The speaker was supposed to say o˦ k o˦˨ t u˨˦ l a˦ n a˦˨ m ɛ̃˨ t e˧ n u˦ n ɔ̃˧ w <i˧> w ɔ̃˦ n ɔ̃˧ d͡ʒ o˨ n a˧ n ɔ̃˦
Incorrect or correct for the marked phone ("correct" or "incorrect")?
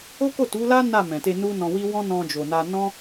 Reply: incorrect